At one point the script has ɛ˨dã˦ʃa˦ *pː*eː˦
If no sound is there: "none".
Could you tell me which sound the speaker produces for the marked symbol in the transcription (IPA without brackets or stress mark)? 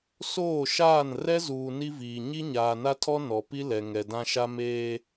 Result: m